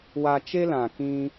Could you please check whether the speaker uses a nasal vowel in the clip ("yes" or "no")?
yes